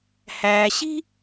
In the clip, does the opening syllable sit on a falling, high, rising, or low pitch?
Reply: low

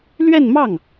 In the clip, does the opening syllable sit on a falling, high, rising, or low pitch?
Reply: falling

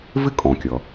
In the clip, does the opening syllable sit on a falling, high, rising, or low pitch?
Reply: high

